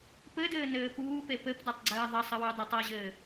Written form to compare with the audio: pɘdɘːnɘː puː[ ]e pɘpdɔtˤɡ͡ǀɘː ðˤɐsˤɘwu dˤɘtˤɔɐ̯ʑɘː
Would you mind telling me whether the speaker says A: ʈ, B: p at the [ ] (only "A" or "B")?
B